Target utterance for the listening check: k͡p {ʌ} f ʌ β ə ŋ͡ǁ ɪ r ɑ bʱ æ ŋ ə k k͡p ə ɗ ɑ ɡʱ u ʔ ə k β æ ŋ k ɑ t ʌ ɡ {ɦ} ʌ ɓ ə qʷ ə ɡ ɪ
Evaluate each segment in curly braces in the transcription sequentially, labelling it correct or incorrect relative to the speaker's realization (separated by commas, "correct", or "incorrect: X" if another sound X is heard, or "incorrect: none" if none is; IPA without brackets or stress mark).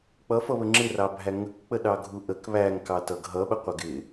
correct, correct